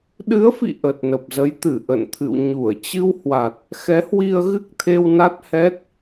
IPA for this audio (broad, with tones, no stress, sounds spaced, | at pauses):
ɗ ɨ˨˦ ə̯ f ḭ˧˨ ʔ ə˨˩ t̚ n ə˨˩ p̚ z ə˨˦ j t̪ ɨ˧˩ ʔ ə̰˧˨ n t̪ʰ ɨ̰˧˨ w ɲ u˧˩ ə̯ t͡ɕ ɨ˧ w h w a˨˩ t̚ | x ɛ˨˦ h w i˧ ə̯ ɣ ɨ˦˥ k̚ t̪ʰ e˧ w n a˦˥ t̚ h ɛ˦˥ t̚